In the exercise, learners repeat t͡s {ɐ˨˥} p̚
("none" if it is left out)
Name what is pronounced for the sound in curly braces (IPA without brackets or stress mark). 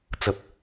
ɐ˧